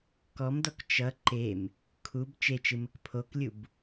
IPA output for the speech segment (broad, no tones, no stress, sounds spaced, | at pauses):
k ɔ m d ɔ k t͡ʃ ʌ ǃ e m | kʰ u b t͡ʃ e t͡ʃ ɨ m ə k pʰ o k lʲ u b